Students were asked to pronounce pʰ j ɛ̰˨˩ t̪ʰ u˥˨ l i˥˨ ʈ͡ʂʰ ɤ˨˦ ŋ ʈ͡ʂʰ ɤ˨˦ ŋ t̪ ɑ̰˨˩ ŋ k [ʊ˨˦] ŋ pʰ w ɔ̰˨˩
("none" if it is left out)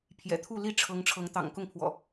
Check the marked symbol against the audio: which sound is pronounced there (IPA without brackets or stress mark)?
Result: ʊ˥˨